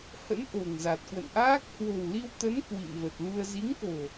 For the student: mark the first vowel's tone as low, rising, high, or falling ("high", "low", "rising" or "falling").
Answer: rising